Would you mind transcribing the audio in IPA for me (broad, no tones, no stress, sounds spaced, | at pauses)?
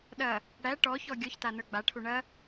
ɗ ɐ | ɽ æ ʈ ɔ ç ɔ ɡʲ ɔ ç t a n ə˞ ɡ͡b a ʈʰ u ɳ ɐ